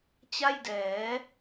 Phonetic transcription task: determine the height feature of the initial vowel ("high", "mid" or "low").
low